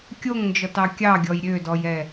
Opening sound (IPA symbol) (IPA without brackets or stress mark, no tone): kʲ